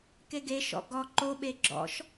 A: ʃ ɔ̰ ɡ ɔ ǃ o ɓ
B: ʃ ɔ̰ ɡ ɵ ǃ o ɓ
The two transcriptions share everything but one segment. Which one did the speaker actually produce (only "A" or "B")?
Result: A